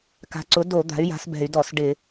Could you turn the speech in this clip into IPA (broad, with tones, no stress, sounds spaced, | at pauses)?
k a̤˩˥ ǀ ʊ˩˥ d o˧˩˧ d̪ a̤˩˥ y̯ j a̤˩˥ s b ɛ̤˧˩˧ y̯ d ɔ˧˩˧ s ɖ ɪ˧˩˧